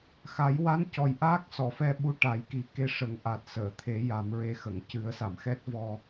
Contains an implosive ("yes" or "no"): yes